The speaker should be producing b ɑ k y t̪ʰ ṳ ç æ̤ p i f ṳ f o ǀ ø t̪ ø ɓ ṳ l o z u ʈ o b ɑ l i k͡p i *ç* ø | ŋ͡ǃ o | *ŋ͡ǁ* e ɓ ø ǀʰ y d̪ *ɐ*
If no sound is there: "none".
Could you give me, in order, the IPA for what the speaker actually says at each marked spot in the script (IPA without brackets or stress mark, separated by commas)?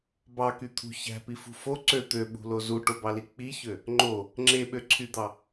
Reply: ç, ŋ͡ǁ, ɑ